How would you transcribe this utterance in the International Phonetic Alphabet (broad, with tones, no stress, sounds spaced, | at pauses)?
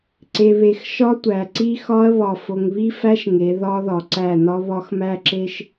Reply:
ǀ e˨ β e˨ x ʃ ɒ˦ tʷ æ˨ ǀ i˦ x ɒ˦ ɐ̯ β ɒ˨ f o˨ ŋ β i˦ f æ˦ ʃ ŋ e˨˦ ð ɒ˦ ð ɒ˨ ǀ æ˦˨ n ɒ˦ β ɒ˦ x m æ˦ ǁ e˦ ʃ